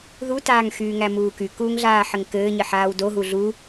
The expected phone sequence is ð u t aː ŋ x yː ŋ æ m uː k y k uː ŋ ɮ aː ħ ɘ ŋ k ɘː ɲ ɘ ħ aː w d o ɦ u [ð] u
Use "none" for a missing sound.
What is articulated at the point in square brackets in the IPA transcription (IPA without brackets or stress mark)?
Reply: ɮ